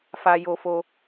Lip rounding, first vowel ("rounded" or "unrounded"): unrounded